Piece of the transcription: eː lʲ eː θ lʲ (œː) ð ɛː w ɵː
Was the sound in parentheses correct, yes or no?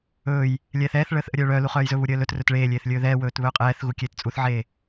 no